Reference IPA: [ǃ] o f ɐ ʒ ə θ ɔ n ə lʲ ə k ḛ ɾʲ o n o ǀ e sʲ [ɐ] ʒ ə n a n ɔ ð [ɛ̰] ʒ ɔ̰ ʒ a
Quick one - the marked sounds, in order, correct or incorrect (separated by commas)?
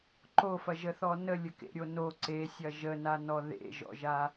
correct, correct, incorrect